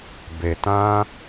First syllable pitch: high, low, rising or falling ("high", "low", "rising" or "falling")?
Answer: low